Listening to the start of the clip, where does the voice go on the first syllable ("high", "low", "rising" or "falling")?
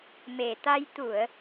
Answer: low